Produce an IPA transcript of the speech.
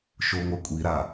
ʃ o ŋʷ ʌ kʷʼ i ɾ a

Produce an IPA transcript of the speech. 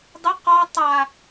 dˤ ə q ɔ tˤ a

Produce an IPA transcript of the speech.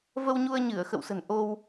v ə˧ w ɲ u˧ ə̯ ɲ ɨ˧˩ ə̯ x ə̰˧˨ w s ə̤˨˩ n ʔ o˧ w

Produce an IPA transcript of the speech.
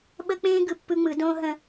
ɓ ə˦ k͡p ẽː˦ ɡ ɯ˨ pː ɯ˦ ŋ͡m ɯ˨˦ d õː˦ ɦ ə̃˦

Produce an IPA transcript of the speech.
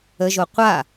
ə ʒ o qʷ a

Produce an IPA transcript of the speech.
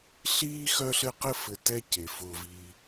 ɬ iː˥ x œ˦ ɬ ɘ˦ q ɘ˥ f ɘ˨ t ɛ˦ c e˩ f ʊː˨ v i˨

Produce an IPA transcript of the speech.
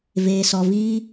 v eː˧ s ɔ˧ v iː˦

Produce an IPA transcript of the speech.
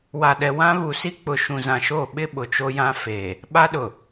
w a˨ ɗ ɛ˨ w ã˦ β u˨ s i˦ k͡p ʊ˨ ʃ ũ˨ z ã˨ ʃ o˦˨ ɓ ɪ˦ ɓ ʊ˨ t͡ʃ o˦ j ã˦ f eː˨ | ɓ a˦ ɗ ʊ˨

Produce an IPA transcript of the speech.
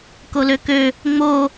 k o l ø k ø | ŋ͡m o

